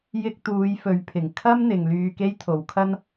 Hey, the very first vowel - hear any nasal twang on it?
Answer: no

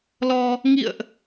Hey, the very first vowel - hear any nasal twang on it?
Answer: no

